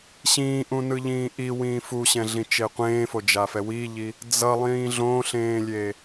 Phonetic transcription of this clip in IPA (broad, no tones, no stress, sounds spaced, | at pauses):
ɕ ĩː ʔ ũ n ɯ ʎ ĩː ʔ i w ĩː f u ɕ ɛ̃ ɮ ĩ t͡ʃ e qʷ ẽː f o d͡ʒ a f ɛ w i ʎ i | d͡z ʌ lˠ ĩː ɮ õ ɬ ẽː lʲ e